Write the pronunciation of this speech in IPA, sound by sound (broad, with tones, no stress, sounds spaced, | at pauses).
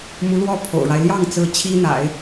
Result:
m u˧˥ l w ɔ˥˩ pʰ o̰˨˩ ʊ̯ ɻ a˦ ɪ̯ l j ɑ˥˩ ŋ t͡s ɹ̩˧˥ t͡ɕʰ i˥ n̪ a̰˨˩˦ ɪ̯